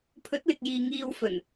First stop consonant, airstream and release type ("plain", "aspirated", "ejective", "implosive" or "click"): aspirated